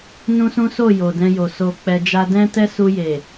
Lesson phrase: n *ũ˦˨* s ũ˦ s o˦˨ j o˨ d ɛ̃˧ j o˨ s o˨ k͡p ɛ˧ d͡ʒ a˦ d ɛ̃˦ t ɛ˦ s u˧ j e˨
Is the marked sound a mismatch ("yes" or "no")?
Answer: yes